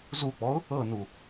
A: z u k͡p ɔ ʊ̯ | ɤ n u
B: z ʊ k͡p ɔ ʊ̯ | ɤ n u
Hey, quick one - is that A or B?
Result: A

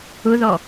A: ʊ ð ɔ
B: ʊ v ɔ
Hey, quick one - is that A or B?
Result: A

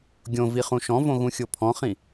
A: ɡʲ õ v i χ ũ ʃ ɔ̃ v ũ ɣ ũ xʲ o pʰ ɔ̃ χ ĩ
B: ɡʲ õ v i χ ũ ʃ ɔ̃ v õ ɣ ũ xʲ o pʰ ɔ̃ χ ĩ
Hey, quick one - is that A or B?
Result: B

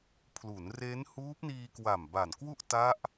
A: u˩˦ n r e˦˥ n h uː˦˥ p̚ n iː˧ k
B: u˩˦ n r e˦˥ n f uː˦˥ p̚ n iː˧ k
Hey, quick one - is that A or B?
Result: A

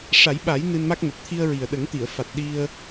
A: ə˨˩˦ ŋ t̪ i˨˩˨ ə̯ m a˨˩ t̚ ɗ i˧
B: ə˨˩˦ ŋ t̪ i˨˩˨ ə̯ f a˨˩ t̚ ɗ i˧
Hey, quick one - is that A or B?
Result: B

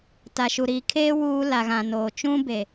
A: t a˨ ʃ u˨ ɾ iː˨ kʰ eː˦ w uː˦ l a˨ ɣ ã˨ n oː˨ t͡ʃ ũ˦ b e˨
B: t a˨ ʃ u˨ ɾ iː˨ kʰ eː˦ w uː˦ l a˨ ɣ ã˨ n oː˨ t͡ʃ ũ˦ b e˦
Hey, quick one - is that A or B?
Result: A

